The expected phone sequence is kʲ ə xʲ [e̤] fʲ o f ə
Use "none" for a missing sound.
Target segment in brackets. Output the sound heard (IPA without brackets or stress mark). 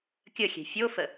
e̤